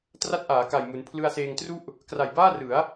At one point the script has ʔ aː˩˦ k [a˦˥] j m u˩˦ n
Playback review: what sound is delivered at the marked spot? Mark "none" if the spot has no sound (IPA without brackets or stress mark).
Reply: a˨˩